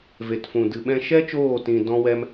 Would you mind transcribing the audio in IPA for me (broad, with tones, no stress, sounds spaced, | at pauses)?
v e˨ t f ũ˨ d ɨ˨ ɓ ɛ̃˧ ʃ ɛ˦ t͡ʃ oː˦˨ t ĩ˧ d ɔ̃˦ w ɛ˦ m